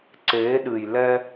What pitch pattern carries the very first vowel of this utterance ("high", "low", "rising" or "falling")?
rising